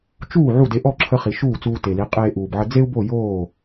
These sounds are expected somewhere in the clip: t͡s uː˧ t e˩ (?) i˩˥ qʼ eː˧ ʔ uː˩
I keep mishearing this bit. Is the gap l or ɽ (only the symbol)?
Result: l